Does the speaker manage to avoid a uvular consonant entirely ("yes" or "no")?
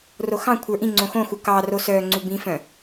yes